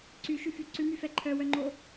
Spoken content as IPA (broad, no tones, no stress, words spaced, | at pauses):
ǀyʃyfy ǀʉmyfɛ ǃʰœwœŋ͡ǃo